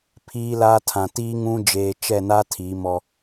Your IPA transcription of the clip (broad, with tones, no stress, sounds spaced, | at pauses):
pʰ iː˦ l aː˦ tʰ ã˨ t iː˦ ŋ ũ˦ d͡ʒ eː˨ t͡ʃ ɛ˦˨ n a˦ tʰ i˨˦ m ɔ˦